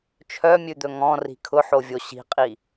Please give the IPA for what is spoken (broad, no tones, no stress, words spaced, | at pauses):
t͡ʃʰœmʲʉd̪ɵ ŋɔ̃ri̤ kʰʊħovʲo ɕi̤qʼi